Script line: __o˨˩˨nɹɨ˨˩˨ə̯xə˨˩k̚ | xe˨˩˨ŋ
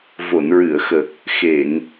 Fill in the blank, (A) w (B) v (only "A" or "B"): B